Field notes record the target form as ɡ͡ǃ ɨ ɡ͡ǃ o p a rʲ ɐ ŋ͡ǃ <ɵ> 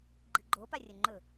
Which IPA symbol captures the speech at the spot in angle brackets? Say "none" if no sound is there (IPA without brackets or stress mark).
ɵ